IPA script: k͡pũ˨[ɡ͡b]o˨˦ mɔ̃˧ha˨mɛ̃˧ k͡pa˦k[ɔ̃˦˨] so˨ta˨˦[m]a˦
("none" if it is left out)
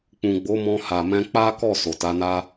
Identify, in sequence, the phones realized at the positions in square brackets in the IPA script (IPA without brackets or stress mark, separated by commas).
ɡ͡b, ɔ˦˨, n